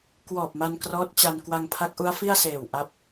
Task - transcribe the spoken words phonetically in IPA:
kwɔː˨˩p̚ma˧n krɔː˦˥t̚t͡ɕa˧n kwa˧ŋpʰa˦˥k̚ʔu˦˥a̯ fi˥˩a̯seː˨˩w ʔa˦˥p̚

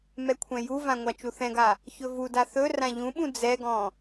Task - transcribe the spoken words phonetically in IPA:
mɛkʷʰɛ̃juvã ŋʷat͡ʃuθɛ̃ɡa | çɵvuda θɵ rãʎũɓũ d͡zɛɡɔ̃

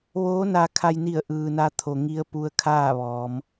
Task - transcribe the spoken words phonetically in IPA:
ʋoː˧˥na˧kʰa˧jni˧˩ə̯ ʔɯː˩na˧ t̪ʰo˩ŋi˧ə̯ pu˧ə̯kʰaː˥˨ʋɔː˩˧m

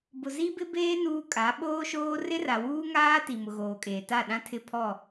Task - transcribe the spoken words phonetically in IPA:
bʊ˨zi˦bɪ˦beː˦ nuː˦kʼa˨˦ ɓoː˦ʃoː˦ rɪ˦ra˨wuː˦ ŋaː˦ ti˨mʊ˨ɣoː˨kʼeː˨ ta˦˨ɗã˦tʰɪ˦pʰɔ˦˨

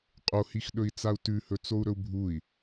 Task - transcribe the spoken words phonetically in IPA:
qʼohixɗɵi̯t͡sau̯ tʉhɵt͡sou̯ɾɵu̯ bʱui̯

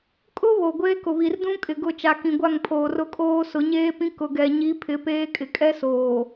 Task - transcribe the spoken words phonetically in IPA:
kʼʊ˦ βo˨ɡʷeː˦ kʊ˨βi˨rdũ˦kʼɪ˨ ɡʊ˨ t͡ʃa˨kĩ˨ɡʷa˦˨ŋpʰoː˨ rʊ˦kʼoː˦ sʊ˨˦ɲeː˦pĩ˦ kʊ˨ɡɛ˨ɲi˨˦ pʰɪ˨˦peː˦kʼɪ˨ kʼɛ˦soː˨

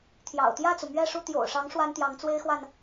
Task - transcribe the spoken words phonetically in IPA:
t̪ʰjɑ̰˨˩ʊ̯ t̪jä˥˩t͡su˩ mɥɛ˥˧ʂu˥˩ t̪jo̰˨˩ʊ̯ʂɑ˧˥ŋ ʂwa˥nt̪jɑ˧˥ŋt͡swe˥ɪ̯xwa˨n

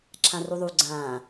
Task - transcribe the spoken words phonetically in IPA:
ǁʰãruðˤu ɡ͡ǀãː

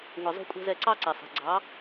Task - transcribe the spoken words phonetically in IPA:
ŋʷi˨zˤṳ˧kʷʼɛ̤˧ zɛ˧ǀɑ˦ǀɛ˨sˤɛ̤˨ ɡ͡ǀɑ˨˦

